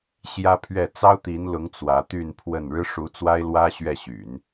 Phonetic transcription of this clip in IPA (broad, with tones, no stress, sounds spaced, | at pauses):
ɕ j ä˥ pʰ ɥ ɛ˥˩ t͡s ɑ˥ ʊ̯ t̪ i˧˥ n l ʊ˧˥ ŋ t͡s w ä˧˥ t̪ y˥˧ n pʰ w ə˥˩ n ɻ ɻ̩˥ ʂ u˧˥ t͡s w a˥ ɪ̯ l w ä˥ ɕ ɥ ɛ˥˩ ɕ y̰˨˩˦ n